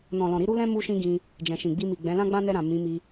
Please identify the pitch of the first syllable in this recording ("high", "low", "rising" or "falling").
low